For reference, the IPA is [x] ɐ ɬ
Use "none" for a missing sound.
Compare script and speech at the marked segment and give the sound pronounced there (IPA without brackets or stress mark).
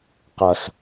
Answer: q